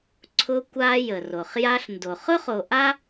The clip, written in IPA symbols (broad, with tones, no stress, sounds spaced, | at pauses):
ǀʰ ʊ˧ kʷ a˧ j ə˩ r o˩ χ j a˧ ɬ n d o˩ χ ʊ˥ χ o˧ ʔ a˥